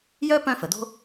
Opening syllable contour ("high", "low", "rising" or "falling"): high